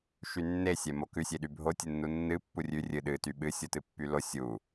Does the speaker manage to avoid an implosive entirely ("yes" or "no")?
no